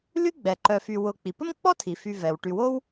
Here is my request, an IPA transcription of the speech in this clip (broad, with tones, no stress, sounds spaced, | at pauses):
l y˥ ɡ͡b ɛ˩ ǃ œ˨ f y˨ w ʊ˨ k͡p i˩ p ə˥ m k͡p ɔ˥ tʰ i˩ f y˨ v ɛ˩ w ʈ y˨ w o˥ w